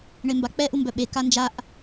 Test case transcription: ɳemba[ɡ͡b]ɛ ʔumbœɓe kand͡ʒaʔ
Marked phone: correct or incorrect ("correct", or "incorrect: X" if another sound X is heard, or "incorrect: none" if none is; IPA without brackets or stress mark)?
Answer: incorrect: k͡p